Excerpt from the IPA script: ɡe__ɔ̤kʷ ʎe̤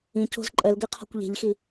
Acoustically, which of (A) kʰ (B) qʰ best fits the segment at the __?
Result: B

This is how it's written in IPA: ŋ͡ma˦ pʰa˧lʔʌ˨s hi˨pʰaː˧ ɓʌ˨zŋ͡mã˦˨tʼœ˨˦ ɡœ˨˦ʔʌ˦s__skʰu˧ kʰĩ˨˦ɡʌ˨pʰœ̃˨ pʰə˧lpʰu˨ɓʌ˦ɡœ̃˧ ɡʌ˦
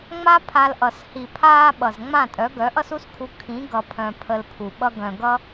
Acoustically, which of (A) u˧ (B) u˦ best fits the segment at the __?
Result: B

